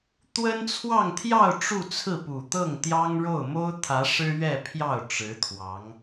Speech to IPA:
t̪ w ə˥ n t͡sʰ w ɑ˥˧ ŋ t̪ʰ j ɑ˥˧ ʊ̯ ʈ͡ʂ u˥˧ t͡sʰ ɹ̩˥˩ p u˨˩ t̪ ɤ˥˩ ŋ t̪ j ɑ˥ ŋ ɻ o˥˩ ʊ̯ m o˥ ʊ̯ t̪ʰ ä˧˥ ʂ ɻ̩˥ ɥ ɛ˥˧ pʰ j ɑ˥˩ ʊ̯ ʈ͡ʂ ɻ̩˧˥ t̪ʰ w ɑ˧˥ ŋ

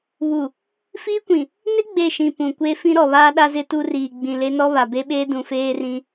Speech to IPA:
β u˨ | f iː˦ kʷ ĩ˨ | n ɪ˦ ɡ͡b e˦˨ ʃ ĩ˨ p ũ˨ kʷ e˦ f ĩ˦ ɾ ɔ˨ β aː˦ ɗ a˦ z ɪ˦ t u˦ r iː˨ ɡ͡b ĩ˨ l e˦ n ɔ˦ β a˨ b e˦ ɓ eː˦ d ũ˨ f eː˦ r ĩ˦

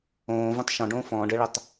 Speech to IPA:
õː v õ tˤ ʃ ɔ̃ ɖ õː f ɔ̃ː ɖ ɘ ɭ ɘ tˤ

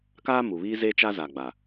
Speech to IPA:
k aː˦ m u˨ β iː˦ z eː˦ t͡ʃ a˦ z a˨ ɡ͡b a˨

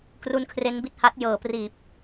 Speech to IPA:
k r u˦˥ n kʰ r e˦˥ n b i˥˩ t̚ h a˦˥ t̚ j ɤː˩˦ p r iː˨˩ p̚

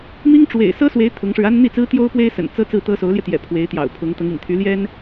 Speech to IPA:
m i˥ ŋ ʈ͡ʂ w ḛ˨˩ ɪ̯ s ɤ˥ s w e˧˥ ɪ̯ t̪ʰ ʊ˧˥ ŋ ʂ ɻ̩˧ a˥ n n̪ i˥˩ t͡s ɹ̩˥ t̪ j o˥ ʊ̯ p w e˥ ɪ̯ s ə̰˨˩ n t͡s ɤ˥ t͡s ɹ̩˥˩ t̪ ɤ˥ s o˧˥ ʊ̯ l j ɛ˧ t̪ j ɛ̰˨˩ pʰ w e˧˥ ɪ̯ t̪ j ɑ̰˨˩ ʊ̯ pʰ ʊ˧˥ ŋ t̪ ɤ˧˥ ŋ ḭ˨˩ ŋ t̪ʰ y˧˥ l j ɛ˥ n

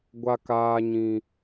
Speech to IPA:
ɡʷ a˨ k aː˨ ɲ ĩ˨

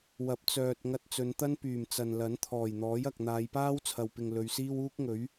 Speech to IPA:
w ɐ˨˥ p̚ t͡s œː˨ t̚ ŋ ɐ˧ t̚ t͡s ɵ˨˧ n t̪ ɐ˥ n p yː˨˩ m t͡s ɐ˨ n l ɐ˨˥ n t̪ʰ ɔː˨˩ j n̪ ɔː˨˥ j ɐ˨ k̚ n̪ aː˨˧ j p aː˥ w t͡sʰ ɐ˨ w p ɪ˨ ŋ l ɵ˨˧ ɥ s iː˥ w uː˥ k̚ ŋ ɵ˨˥ ɥ

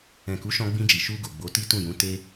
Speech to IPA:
ɛ̃˨ k u˨˦ ʃ ɔ̃˧ ɡ͡b ĩ˧ d͡ʒ i˨ ʃ u˧ ɡ o˨ ɡ͡b o˨˦ t i˦ t ũ˦˨ j ũ˨˦ t e˦

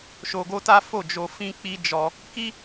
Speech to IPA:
ʃ o˧ ɡ o˦ t a˦ f o˦˨ d͡ʒ o˧ f ĩ˦ k͡p i˦ d͡ʒ ɔ˧ | k i˦

